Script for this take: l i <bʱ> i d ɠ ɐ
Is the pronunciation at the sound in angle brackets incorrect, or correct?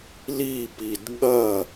incorrect